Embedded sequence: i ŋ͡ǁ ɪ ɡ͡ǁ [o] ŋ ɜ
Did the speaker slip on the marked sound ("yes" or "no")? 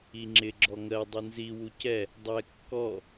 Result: yes